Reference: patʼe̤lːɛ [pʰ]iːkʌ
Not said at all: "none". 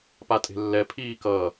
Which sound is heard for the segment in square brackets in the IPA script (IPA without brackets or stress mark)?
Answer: pʰ